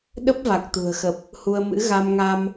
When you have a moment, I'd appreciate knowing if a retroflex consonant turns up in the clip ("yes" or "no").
no